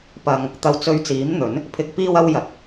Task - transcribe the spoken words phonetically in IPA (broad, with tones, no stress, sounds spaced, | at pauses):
p ɐ˨ ŋ | t̪ ɐ˨ w t͡s ɵ˨˧ ɥ t͡s iː˨˥ m n̪ ɵ˨˥ n | pʰ ɪ˨ k̚ p iː˧ w ɐ˧ w j ɐ˨ t̚